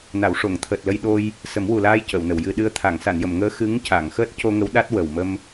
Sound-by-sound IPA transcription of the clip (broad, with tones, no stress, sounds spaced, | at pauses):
n a˨˩˨ w ʂ o˨˩˨ ŋ t̪ʰ əː˨˩ t̚ l ə˧ j ɗ o˧ j | s ə˨˩˦ m w u˨˩ l aː˧ j c ə˨˩˨ w n ə˨˩˨ w j ɨ˧ ɗ ɨ˧ ə̯ t̪ʰ a˨˩˨ ŋ s a˨˩˨ n j ə˨˩˨ m ŋ əː˧˥ x ɨ˧˥ ŋ c a˨˩˨ ŋ x əː˦˥ t̚ c o˧ ŋ ə˧˥ w ɗ a˦˥ t̚ w ə˨˩ w m ə˧ m